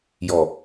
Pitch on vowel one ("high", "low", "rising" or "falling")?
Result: low